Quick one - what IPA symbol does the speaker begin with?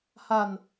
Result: h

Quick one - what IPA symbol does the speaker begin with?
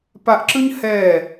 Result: p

